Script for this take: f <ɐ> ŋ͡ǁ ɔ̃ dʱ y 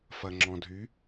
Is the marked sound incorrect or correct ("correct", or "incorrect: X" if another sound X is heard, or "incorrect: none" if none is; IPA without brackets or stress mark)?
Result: correct